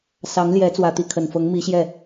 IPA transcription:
s ɑ˧˥ ŋ l j ɛ˧˥ t͡s w ä˨˩ t̪ i˥˩ kʰ ə˨˩ n f ɤ˧˥ ŋ m i˧˥ ɕ j ɛ˥˩

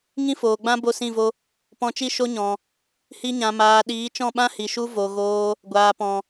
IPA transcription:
ŋ ĩ˦ f oː˨ ɡ͡b ã˦ b o˦˨ s ĩ˦˨ v o˦ | p ɔ̃˧ t͡ʃ i˦ ʃ o˦ ɲ ɔ̃˨ | h i˧ ɲ ã˨ m aː˨ ɗ iː˨˦ t͡ʃ ɔ̃˦˨ ɓ ã˦ h i˨ ʃ u˦ v o˨ ɣ oː˧ | ɡʷ aː˨ p ɔ̃˨

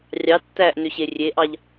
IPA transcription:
rʲ ɑ tː æ ʔ n ø ɕ e rʲ e ʔ ɑ ʎ

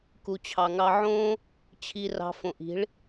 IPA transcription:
k u˨ t͡ɕʰ ɑ˨ ŋ ɑ˧ ʕ õː˦ | t͡ɕʰ i˧ r ɑ̤˧ f õ˨ ʔ i̤˨˦ ɭ

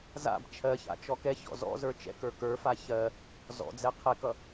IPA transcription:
z a̰ b t͡ʃʰ ɜ ç a̰ t͡ʃ ɔ k ɛ ç ɔ̰ z ɔ̰ z ə˞ t͡ʃ ɛ̰ k ə˞ k ə˞ f a ç ɜ | z ɔ̰ d͡z ɛ qʰ ɛ k ʌ

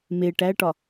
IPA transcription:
m e ʈ æ ʈ ɒ

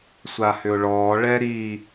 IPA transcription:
sʷ a h ʏ ʊ̯ ɭ ɔː ɭ ɛ ɾ iː

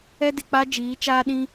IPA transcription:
ɛ˦ d ɪ˨ k͡p a˦ d͡ʒ iː˨˦ t͡ʃ aː˦ ɗ ĩ˦

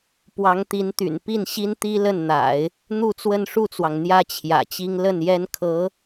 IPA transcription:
p w ɑ˧˥ ŋ t̪ i˧˥ n t̪ y̰˨˩ n p i˥˩ n ɕ i˥ n t̪ i˥ l ə˥˩ n n̪ a̰˨˩˦ ɪ̯ | n̪ u˥˧ t͡s w ə˥˧ n ʂ u˥˩ t͡s w ɑ˩ ŋ n̪ j ä˥ t͡ɕʰ j ä̰˨˩ t͡ɕ i˥ ŋ l ə˥˩ n j ɛ˥ n kʰ ɤ˧˥

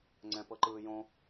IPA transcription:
ŋ͡ǀ ɛ̃ p ɤ ǃ ɯː j õ

